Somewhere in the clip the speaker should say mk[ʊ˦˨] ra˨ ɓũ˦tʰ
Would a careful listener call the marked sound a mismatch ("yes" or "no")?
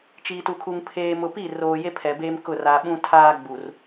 no